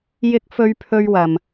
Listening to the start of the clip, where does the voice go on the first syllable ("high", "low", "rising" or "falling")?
high